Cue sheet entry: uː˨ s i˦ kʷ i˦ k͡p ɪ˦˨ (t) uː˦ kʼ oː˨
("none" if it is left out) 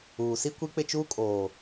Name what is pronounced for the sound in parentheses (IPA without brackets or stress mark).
t͡ʃ